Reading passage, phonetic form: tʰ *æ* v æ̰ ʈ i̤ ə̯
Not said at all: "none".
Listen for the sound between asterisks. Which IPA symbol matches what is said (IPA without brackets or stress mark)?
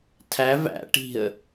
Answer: æ